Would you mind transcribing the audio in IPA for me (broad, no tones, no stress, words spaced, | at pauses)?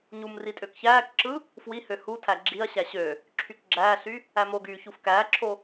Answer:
ɲum ritʼøkçæːkǁɯ | fwihø hutʰæ ɡ͡ǁiɐ̯ɕæ ɕø | ǁʰykɡ͡ǁæːɬy | æmoɡyː çufkæːǁʰo